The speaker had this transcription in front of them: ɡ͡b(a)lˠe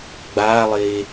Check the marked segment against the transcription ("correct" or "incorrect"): correct